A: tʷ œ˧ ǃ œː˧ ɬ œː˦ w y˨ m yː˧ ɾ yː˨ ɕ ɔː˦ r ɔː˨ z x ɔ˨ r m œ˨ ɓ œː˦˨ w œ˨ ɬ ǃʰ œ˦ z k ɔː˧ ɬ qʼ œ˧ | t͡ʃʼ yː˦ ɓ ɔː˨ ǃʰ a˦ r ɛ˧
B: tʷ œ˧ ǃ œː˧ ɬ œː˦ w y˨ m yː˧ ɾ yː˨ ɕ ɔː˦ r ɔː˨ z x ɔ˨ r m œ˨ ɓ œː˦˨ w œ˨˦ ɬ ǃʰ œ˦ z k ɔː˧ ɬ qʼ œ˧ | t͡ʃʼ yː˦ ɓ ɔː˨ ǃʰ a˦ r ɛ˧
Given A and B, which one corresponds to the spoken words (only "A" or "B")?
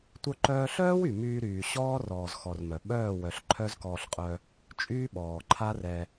A